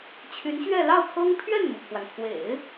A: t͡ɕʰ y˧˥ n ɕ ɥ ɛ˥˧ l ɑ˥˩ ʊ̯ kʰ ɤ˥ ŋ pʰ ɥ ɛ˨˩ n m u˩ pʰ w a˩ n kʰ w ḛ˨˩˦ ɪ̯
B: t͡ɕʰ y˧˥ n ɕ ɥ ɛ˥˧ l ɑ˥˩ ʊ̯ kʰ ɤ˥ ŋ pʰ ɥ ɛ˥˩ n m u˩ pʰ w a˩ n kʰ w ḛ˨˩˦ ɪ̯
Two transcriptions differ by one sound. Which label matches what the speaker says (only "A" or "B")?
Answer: B